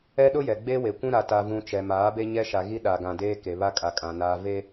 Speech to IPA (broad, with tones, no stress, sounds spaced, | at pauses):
ɛ˦ ɗ ʊ˦ j ɛ˨ ɡ͡b e˦ w e˨ kʷ ũ˦ ɾ a˨ t a˨ v ũ˨ t͡ʃ ɛ˨ m aː˨˦ b e˦ ɲ ɛ˦ ʃ a˨ ɣ i˦ ɗ a˨ ɡ ã˨ d eː˦ k e˨ β a˦ kʼ a˨ kʼ ã˨ n aː˨ v e˦